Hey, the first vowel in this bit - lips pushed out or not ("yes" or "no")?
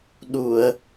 yes